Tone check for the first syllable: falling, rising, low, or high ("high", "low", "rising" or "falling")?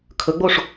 rising